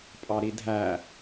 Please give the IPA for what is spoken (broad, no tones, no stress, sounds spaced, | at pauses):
pʼ ɑ ɾ i dʱ æ